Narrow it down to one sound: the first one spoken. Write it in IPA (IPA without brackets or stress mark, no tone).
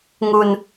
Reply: ŋ